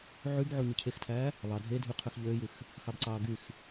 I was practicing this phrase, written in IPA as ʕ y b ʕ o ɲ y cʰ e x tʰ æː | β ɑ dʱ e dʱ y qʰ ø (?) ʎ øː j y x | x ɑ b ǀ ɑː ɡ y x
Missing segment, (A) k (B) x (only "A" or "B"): B